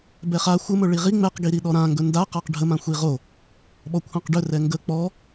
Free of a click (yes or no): yes